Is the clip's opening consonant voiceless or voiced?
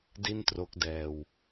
voiced